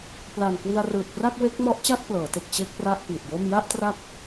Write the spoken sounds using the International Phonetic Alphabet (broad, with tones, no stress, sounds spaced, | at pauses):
p l a˨˩ n k w i˧ a̯ r ɯː˨˩ t̚ p r a˥˩ k̚ w e˦˥ k̚ m ɔ˦˥ ʔ t͡ɕ a˥˩ t̚ p l ɤː˩˦ t e˨˩ k̚ t͡ɕ e˥˩ k̚ p r a˥˩ ʔ p i˨˩ t̚ j o˥˩ m j a˥˩ ʔ t r a˦˥ k̚